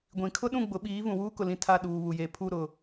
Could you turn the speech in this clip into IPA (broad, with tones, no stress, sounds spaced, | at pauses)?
ɡʷ ĩ˨ kʰ ʊ˦ ɗ ũ˦˨ ɡ͡b ʊ˨˦ ɓ iː˨˦ v ũ˨ w uː˦ k ʊ˨ l ĩ˨ tʰ a˦˨ ɗ uː˨ β u˨ j e˨ pʰ u˦˨ ɾ ʊ˨